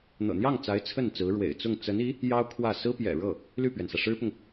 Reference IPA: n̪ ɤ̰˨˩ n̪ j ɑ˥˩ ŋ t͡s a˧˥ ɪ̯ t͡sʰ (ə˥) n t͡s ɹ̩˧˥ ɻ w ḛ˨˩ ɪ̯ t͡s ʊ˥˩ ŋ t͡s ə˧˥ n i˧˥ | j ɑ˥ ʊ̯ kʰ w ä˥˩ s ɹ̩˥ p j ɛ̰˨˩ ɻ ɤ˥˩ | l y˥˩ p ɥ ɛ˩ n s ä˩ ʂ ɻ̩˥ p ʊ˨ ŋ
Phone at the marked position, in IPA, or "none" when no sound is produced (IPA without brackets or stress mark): ə˥˩